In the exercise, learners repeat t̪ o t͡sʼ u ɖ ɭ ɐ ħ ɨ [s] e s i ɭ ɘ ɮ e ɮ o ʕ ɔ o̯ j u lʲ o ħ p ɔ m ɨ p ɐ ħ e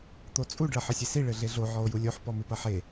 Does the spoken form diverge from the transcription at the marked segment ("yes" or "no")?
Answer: yes